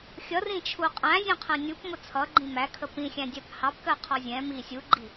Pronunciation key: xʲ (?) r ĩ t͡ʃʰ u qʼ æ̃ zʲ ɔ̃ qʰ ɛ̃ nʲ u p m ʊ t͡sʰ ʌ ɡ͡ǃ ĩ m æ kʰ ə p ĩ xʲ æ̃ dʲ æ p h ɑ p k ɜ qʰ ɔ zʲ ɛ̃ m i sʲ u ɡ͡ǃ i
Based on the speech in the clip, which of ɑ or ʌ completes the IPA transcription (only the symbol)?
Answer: ʌ